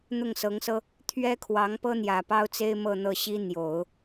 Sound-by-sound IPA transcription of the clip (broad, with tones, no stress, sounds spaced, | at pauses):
n̪ ʊ˥˩ ŋ s ɤ˧˥ ŋ s ɤ˥ | t̪ʰ ɥ ɛ˥ kʰ w ɑ˧˥ ŋ p ɤ˥ n̪ j ä˨˩ p ɑ˥ ʊ̯ t͡s e˥ ɪ̯ m ɤ˥˧ n̪ ɤ˥˩ ɕ i˥ n̪ j o˨˩˦ ʊ̯